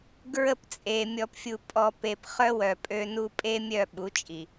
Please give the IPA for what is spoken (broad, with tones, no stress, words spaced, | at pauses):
ɡɹə˦˨pt͡sʼe˨ mʲɔ˨pfʲu˨ pʼɔ˨ pe˨p χœ˦wœ˨pʼø˦nu˦ pʼe˦mʲœ˦˨ɓu˨˦t͡ʃʼi˨